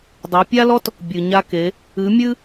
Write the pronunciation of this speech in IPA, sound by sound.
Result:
dˤ ɛ˩˧ pʲ a˥ l ɔ˥ t | bʲ ɨ˩ ɲ a˧ k e˩˧ | ɨ˩˥ mʲ ɨ˥

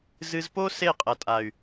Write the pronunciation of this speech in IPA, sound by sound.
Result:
z ɨ˧ z p o˦ s e˦˨ qʼ ɐ˨ tʼ a˨ y̯

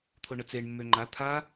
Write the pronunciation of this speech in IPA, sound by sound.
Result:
t̪ʰ o ɳ ə t͡s e ɳ mː ø ŋ͡ǃ a t̪ʰ a

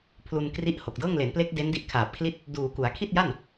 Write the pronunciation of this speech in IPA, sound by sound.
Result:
pʰ l u˧ n k r i˦˥ ʔ h o˨˩ k̚ d ɤː˥˩ ŋ l e˩˦ n p l e˦˥ k̚ d e˦˥ n d i˦˥ ʔ kʰ aː˨˩ p̚ kʰ l i˥˩ t̚ | d uː˨˩ k u˩˦ a̯ kʰ i˥˩ t̚ j a˥˩ n

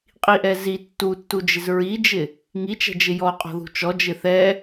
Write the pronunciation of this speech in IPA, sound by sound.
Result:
qʼ i ʔ ɛ z i tː u tː u d͡ʒ ɪ z ɹ i d͡ʒ ɪ | ŋ i t͡ʃ ɛ̤ d͡ʒ ɪ j ɔ qʼ ɔ̤ ð ṳ t͡ʃ ɔ d͡ʒ ɪ θ ɛ

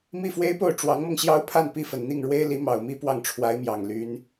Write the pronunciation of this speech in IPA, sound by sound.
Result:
m i˥˩ f w e˥ ɪ̯ p o˥˩ ʊ̯ ʈ͡ʂ w ɑ˧˥ ŋ m ɤ˧ ŋ ɕ j ɑ˥ ʊ̯ pʰ a˥˧ n p i˥˩ f ə˨˩ n n̪ i˥˩ ŋ ɻ w e˥ ɪ̯ l i˧˥ m ɑ˨˩ ʊ̯ m i˥ p w ɑ˥˩ ŋ ʈ͡ʂʰ w a˧˥ ɪ̯ m j ɑ˨˩ ŋ l y˧˥ n

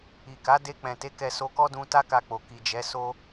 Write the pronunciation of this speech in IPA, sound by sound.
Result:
i˨ k a˨˦ d e˧ k͡p ɛ̃˨ t e˨˦ k ɛ˧ s o˧ k ɔ˦ d ũ˧ t a˦ k a˧ k͡p o˨ k i˨ d͡ʒ ɛ˨˦ s o˧

